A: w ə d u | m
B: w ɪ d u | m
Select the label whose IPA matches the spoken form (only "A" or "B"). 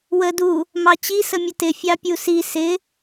A